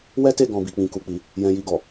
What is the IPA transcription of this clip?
w ɛ˦ t e˦˨ ɡ ɔ̃˨ b i˨ k͡p ĩ˨ k u˨ k͡p i˨ | j ɛ̃˧ j i˧ ɡ ɔ˨

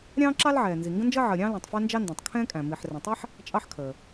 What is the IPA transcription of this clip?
ɾʲ ɑ̃ː˥ ǁ ɑ˥ l ʕ ɛː˩ n z i˩ ŋ ɡ ə̃˥ n d͡ʒ əː˥ ʕ əː˩ ɾʲ ɑ̃ː˥ l ɛ̃˩ tˤ f æ˥ n d͡ʒ ɑ˥ n d ɔ̃˩ tˤ kʰ ɛ̃ː˥ kʼ æ̃˩ m i˩ ħ r ə̃˩ tˤ ɛ˥ ħ | t͡ʃʼ ɑ˥ ħ kʰ əː˩

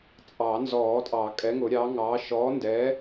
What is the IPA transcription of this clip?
t͡sʼ ɑ˨˩˦ n z ɔː˨˩˦ tʼ ɑ˨˩˦ kʼ ɛ˨˥ ŋ ʊ˨˩˦ ɾʲ ɑː˨˥ ŋ ɑː˨˥ ʃ ɔː˨˥ n d ɛː˨˥

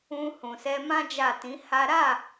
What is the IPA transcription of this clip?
ũ˧ h ũ˨ s ɛ˧ m ã˦ d͡ʒ a˦˨ t ĩ˨˦ h a˦ ɾ a˦˨

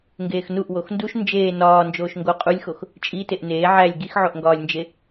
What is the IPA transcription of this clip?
ŋ ɡ eː x n u ʔ w o x n d u ʃ n d͡ʒ eː n ɒː n d͡ʒ oː ʃ ŋ ɡ o qʼ u lʲ x o x | t͡ʃʼ i t e ʔ n eː ʕ æ lʲ ɡ i x ʕ o ʔ ŋ ɡ ɒː lʲ n d͡ʒ e

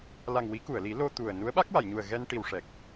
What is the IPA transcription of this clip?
l a˨˩ ŋ w i˨˩˦ k u˨˩˨ ə̯ l i˨˩˦ l o˧ t̪ u˨˩ ə̯ n u˧˥ ə̯ ɓ a˦˥ k̚ w a˨˩˨ j ɲ u˨˩ ə̯ ɣ ɛ˧ n ʈ i˨˩ w ʂ ɛ˨˩ k̚

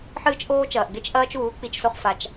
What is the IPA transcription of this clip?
ħ ɨː˦ t͡ʃ ʔ oː˦ t͡ʃ ɐː˨ ʔ ɡ e˦ t͡ʃ ʔ ɐː˦ t͡ʃ uː˨˦ k͡p i˧ t͡ʃ s o˧ χ f a˧ t͡ʃ

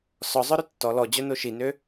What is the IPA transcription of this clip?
s ɔ zˤ œ ɾ ø tː ɔ l ɔ d͡ʑ œ n o ʃ i n ø

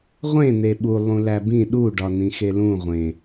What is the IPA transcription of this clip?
ʁʷ ẽ n e ɓ u lˠ ũ l æ b ĩ ɗ u ɖ ɒ n ĩ x e l ũ ʁʷ ẽ

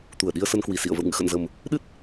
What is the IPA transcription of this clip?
t̪ u˧˩ ə̯ ɗ i˧ ə̯ s ə˧ n k w i˨˩ s ḭ˧˨ ə̯ v ə̰˧˨ w ŋ ɨ̰˧˨ x ə̰˧˨ n z ə˨˩ m | ɗ ɨ˦˥ t̚

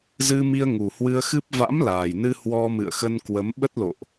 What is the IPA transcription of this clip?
z ɨ˧ m i˧ ə̯ ŋ u˨˩ h w ɨ˧ ə̯ x ɨ˦˥ p̚ v a̰˧˥ m l aː˨˩ j n ɨ˧ h w ɔ˧ m ɨ̰˧˨ ə̯ x ə˧ n k w ə˨˦ m ɓ ə˦˥ t̚ l o̰˧˨ ʔ

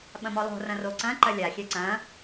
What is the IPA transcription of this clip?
ɓ ɐ̃ m ɔ lˠ o̤ r ɐ̃ r o ǀ ɐ̃ ǃ ɐ lʲ a xʲ ɛ ǀ ɐ̃

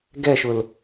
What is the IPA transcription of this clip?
ɡ ɛ ʃ ʊ l

